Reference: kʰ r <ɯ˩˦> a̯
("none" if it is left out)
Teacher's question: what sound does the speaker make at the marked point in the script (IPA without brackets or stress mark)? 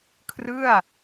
ɯ˥˩